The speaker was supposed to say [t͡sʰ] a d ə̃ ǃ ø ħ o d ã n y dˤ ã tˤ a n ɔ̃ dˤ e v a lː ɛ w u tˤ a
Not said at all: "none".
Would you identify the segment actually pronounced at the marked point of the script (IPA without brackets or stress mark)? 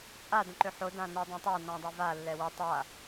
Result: t͡sʼ